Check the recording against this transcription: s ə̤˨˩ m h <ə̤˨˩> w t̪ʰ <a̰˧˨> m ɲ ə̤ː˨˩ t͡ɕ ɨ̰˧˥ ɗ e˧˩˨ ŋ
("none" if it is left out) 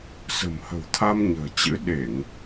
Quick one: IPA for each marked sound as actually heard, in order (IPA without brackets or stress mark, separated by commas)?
ə̤˨˩, a˧